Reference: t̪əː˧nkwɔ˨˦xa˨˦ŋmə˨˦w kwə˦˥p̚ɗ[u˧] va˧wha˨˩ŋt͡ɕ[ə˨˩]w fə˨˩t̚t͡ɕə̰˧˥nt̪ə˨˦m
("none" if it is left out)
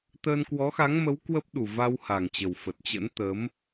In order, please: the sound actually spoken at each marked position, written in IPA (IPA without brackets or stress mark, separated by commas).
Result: u˨˩, ə˨˩